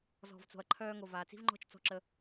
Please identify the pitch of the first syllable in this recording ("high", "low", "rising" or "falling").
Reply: low